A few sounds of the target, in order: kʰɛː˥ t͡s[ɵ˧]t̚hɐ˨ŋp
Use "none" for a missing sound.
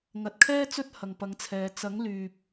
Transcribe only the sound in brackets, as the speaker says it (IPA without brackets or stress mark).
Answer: ɵ˥